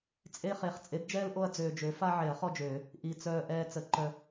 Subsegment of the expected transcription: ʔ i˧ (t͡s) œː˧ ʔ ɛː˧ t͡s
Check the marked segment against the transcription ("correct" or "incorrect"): correct